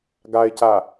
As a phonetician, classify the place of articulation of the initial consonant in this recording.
velar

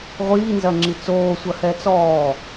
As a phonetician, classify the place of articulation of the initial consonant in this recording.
uvular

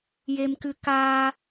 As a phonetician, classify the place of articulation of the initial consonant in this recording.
palatal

